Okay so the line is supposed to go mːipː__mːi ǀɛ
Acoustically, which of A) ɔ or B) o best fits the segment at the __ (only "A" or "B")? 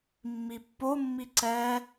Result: B